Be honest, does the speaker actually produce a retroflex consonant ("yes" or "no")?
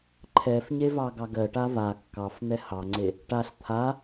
yes